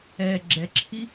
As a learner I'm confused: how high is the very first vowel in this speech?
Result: mid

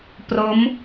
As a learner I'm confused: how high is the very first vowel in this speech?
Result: mid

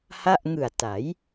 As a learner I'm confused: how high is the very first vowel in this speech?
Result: low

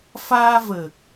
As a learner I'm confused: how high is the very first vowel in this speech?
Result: low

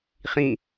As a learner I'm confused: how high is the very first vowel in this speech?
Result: high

